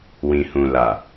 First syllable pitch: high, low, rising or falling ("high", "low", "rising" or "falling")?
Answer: low